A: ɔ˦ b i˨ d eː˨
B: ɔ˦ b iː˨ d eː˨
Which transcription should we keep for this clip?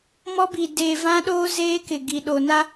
A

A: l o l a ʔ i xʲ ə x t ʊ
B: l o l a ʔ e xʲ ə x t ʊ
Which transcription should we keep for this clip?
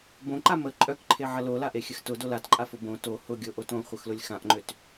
B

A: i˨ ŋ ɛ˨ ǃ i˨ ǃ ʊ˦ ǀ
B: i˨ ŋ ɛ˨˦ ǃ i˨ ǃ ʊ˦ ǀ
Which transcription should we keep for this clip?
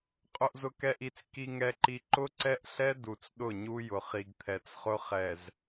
A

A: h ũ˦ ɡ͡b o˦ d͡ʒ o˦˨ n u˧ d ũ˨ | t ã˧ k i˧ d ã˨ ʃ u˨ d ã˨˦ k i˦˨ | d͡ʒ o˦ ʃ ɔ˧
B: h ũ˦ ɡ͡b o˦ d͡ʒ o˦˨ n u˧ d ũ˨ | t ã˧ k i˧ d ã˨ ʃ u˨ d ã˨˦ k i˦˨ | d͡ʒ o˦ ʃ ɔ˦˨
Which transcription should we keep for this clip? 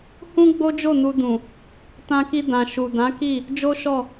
B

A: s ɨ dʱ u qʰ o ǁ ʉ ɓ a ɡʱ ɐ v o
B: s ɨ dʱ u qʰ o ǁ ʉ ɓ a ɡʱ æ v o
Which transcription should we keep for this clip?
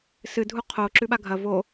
A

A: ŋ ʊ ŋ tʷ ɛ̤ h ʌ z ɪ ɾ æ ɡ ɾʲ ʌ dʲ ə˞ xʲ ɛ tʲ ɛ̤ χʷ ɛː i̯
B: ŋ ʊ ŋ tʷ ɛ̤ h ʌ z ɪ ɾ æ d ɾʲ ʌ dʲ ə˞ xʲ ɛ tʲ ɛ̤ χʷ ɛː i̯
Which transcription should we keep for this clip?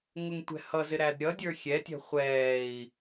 B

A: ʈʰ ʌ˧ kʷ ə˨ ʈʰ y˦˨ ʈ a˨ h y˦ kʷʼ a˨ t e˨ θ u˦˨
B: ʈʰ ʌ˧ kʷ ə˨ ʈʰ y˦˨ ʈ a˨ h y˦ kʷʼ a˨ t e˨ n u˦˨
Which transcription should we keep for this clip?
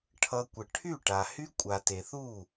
A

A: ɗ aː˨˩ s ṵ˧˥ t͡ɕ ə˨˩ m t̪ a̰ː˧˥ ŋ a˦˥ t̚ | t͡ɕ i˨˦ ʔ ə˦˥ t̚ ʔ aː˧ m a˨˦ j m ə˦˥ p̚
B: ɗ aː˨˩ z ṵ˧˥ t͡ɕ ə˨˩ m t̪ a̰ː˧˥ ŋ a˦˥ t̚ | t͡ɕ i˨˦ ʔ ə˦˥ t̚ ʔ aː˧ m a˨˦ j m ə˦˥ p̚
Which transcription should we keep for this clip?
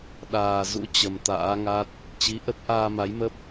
B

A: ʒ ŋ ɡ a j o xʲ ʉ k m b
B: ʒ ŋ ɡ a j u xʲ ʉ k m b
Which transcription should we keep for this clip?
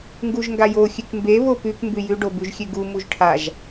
A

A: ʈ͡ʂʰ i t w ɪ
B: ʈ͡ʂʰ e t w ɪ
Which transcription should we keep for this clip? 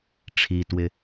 A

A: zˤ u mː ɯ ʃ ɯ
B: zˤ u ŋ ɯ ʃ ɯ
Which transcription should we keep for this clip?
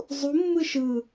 A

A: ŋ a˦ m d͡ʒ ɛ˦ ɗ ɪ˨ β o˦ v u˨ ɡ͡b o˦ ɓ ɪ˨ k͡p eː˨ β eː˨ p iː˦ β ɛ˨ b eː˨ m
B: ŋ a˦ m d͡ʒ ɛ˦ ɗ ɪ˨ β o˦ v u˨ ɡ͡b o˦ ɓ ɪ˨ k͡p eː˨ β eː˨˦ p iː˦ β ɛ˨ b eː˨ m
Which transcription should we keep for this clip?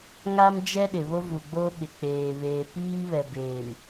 A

